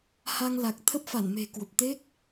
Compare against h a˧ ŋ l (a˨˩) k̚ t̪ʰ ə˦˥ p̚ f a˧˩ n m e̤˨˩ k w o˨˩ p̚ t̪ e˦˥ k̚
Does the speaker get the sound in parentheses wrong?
no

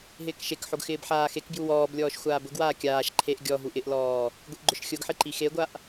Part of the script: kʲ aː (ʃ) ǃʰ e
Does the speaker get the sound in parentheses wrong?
no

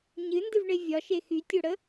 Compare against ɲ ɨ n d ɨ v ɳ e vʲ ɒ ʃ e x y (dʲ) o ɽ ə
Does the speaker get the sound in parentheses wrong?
yes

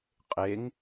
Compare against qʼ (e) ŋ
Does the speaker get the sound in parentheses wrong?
no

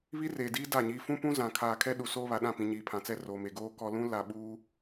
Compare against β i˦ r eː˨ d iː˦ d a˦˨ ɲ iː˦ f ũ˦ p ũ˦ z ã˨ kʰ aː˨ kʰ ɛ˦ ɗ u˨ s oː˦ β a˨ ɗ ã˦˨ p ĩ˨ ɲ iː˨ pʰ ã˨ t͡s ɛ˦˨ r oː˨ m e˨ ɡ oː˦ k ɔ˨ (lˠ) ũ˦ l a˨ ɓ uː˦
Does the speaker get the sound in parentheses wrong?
yes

